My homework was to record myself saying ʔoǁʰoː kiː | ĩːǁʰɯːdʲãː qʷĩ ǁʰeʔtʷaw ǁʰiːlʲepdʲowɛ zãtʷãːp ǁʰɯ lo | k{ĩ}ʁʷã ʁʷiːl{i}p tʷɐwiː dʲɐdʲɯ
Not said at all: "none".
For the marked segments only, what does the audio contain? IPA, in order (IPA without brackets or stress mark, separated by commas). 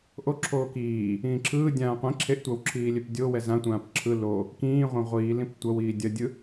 ĩː, ĩ